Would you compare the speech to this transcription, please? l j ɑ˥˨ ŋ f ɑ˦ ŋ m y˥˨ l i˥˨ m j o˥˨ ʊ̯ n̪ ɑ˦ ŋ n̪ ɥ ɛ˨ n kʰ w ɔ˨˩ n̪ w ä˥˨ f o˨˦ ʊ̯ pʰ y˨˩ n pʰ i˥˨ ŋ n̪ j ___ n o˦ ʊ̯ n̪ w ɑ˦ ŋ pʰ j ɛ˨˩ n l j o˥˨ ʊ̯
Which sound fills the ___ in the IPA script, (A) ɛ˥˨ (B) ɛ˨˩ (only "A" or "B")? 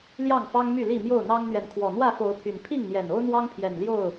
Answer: B